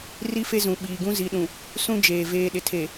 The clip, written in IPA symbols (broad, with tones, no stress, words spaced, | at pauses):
ri˦fe˦zũ˨ ɓiː˨ɡũ˦ zi˨˦ɗũ˨ | sũ˦d͡ʒeː˨ veː˨ɗɪ˨tʰe˨